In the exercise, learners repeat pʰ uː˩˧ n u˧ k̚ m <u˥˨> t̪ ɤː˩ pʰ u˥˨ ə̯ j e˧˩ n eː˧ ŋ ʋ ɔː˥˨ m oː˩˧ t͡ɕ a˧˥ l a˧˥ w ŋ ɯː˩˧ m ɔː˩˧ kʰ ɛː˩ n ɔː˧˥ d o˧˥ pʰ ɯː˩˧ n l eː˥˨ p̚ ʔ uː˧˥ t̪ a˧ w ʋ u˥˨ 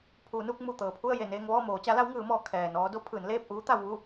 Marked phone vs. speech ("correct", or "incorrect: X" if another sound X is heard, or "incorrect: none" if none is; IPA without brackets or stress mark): incorrect: u˧˩